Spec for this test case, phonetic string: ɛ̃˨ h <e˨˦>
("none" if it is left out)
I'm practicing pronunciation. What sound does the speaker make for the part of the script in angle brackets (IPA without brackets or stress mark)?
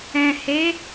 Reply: e˨˦